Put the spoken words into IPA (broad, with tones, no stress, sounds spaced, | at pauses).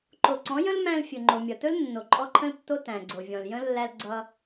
ǃ o˨ ǀ ɔ̃˨˦ j ə̃˦ l m æ̃˧ l fʲ ɵ˨ ŋ͡ǃ o˨ mʲ ʌ˨ t ɵ˦ l nː o˨ ǃʼ ɔ˦ ǃʰ ə̃˦ l tː o˦ t æ̃˨ ɡ͡ǀ o˨ vʲ ɔ̃˨ l j ə̃˦ lː æ˧ l ɡ͡ǀ ʌ˧